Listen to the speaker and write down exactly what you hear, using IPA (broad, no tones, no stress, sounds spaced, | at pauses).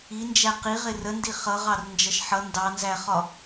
i n d͡ʒ æ q i ʁ ɪ r ə n d i χ ʌ ʁ ɑ r n d͡ʒ ʌ ʃ ħ ʌ n d ɑ n z æ χ ɒ